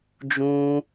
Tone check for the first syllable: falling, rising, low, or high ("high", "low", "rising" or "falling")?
high